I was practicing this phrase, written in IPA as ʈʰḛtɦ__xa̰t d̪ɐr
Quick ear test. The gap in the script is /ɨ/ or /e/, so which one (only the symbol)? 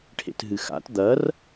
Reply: ɨ